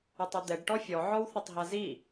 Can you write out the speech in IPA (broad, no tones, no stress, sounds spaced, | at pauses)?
u tˤ u d̪ ɛ ɖ ʈ ɔ fʲ ɔ ʕ ɔ w θ ɛ tˤ ɦ a z i